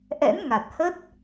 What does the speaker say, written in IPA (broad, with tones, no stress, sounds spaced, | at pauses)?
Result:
ʔ ɛ̰˧˥ n ŋ a˨˩ t̚ h ə˦˥ t̚